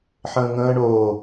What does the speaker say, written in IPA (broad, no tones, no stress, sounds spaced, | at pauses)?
ħ ə̃ː ŋ ə̃ː ɳ oː